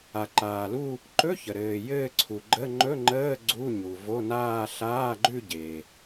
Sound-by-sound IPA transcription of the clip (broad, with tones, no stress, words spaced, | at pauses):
a˩ǃaː˩lu˥˧ | ǃɵ˧˥˧çə˩ ɾɘː˩ jɘː˥˧ǀʰu˩ɡ͡ǃə˧˥˧ ŋ͡ǃɵ˧˥˧ ŋ͡ǃəː˧˥˧ ɡ͡ǀu˧˥˧ɲu˩vo˧˥˧naː˥˧ ɬaː˧˥˧ɡ͡ǃʉ˥˧ ɟe˩